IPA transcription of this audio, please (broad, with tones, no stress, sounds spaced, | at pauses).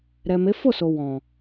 ɾ ɛ˨ m e˨˦ f o˦˨ s o˨ w ɔ̃˨